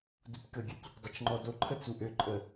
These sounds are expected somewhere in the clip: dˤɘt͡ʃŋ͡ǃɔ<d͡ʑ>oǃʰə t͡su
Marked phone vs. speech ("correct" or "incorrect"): incorrect